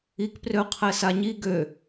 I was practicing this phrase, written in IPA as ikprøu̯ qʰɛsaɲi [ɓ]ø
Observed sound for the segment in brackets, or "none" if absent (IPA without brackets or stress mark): ɡ